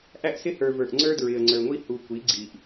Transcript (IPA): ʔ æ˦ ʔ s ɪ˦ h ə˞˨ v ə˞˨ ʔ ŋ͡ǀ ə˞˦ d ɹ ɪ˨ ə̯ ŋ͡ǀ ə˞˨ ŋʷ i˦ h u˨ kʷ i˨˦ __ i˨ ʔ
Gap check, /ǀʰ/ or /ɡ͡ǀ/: ɡ͡ǀ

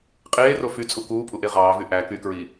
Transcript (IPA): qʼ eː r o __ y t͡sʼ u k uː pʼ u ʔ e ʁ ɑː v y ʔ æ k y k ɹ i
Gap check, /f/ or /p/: f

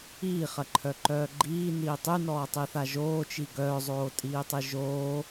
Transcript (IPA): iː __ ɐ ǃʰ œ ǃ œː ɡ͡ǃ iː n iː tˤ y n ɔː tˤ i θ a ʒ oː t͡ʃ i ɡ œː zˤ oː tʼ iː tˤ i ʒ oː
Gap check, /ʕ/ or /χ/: χ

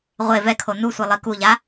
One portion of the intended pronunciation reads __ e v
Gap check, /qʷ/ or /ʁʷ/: ʁʷ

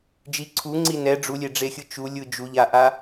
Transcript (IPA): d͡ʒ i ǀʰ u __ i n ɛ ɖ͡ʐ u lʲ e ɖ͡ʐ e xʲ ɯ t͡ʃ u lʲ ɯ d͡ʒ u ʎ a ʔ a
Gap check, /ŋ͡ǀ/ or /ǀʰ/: ŋ͡ǀ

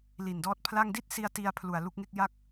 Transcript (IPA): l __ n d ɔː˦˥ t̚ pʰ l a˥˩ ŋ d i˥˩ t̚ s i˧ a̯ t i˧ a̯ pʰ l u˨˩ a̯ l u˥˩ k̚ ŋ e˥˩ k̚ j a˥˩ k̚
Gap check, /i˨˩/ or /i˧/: i˨˩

